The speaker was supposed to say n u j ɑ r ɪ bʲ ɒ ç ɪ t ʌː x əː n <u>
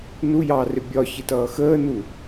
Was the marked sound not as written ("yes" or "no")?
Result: no